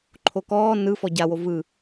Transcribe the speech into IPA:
ǃʰ o k ɔː n ɯ f ɔ ɟ a w o v ɯ

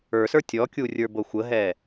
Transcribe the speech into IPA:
ə˞ s ə˞ tʲ ɔ kʲ u rʲ ə˞ b o xʷ ə ɦ ɛ

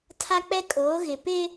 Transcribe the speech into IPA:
tʰ a˦ k͡p ɛ˦ kʼ oː˨˦ ɣ ɪ˨ p ɪ˦

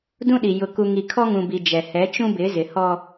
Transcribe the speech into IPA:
d ũ˦ ɗ i˨ j ʊ˨ k u˨ ŋ i˨ kʰ ɔ˦ ŋ ũ˨ b i˨ d͡ʒ ɛ˨ h ɛ˨˦ t͡ʃ ũ˦ b ɪ˨˦ z ɪ˨ h ɔ˦

